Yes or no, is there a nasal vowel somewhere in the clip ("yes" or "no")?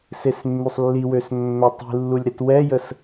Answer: no